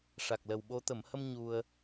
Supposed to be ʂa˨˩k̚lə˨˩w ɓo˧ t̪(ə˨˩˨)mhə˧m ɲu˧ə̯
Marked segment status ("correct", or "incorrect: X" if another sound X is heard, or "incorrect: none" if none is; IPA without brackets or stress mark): correct